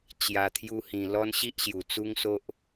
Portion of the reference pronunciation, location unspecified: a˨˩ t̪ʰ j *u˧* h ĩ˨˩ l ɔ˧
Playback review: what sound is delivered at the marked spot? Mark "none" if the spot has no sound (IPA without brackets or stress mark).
u˧